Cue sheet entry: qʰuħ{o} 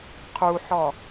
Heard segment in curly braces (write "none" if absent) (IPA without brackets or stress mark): ɔ